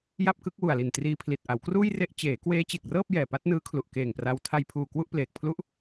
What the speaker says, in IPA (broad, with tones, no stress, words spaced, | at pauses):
ja˥˩p̚kɯ˦˥k̚ wu˨˩a̯li˨˩n triː˧pʰli˨˩t̚ ʔa˩˦wkruː˥˩jre˥˩ʔ t͡ɕeː˩˦ kweː˦˥t͡ɕe˨˩k̚rɤː˥˩p̚ jɛː˨˩pa˦˥t̚nɯː˦˥kʰlu˨˩ʔ keː˨˩ŋpra˧w tʰa˧jpʰuː˨˩ kwu˥˩ʔpleː˨˩k̚pʰlu˥˩ʔ